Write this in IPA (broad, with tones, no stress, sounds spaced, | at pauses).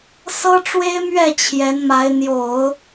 s ɤ˥ ʈ͡ʂ w e˥ ɪ̯ m ɥ ɛ˥˩ t͡ɕʰ j ɛ˧˥ n m a˧˥ ɪ̯ n̪ j o˨˩˦ ʊ̯